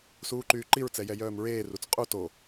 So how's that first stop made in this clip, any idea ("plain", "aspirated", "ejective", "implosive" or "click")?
click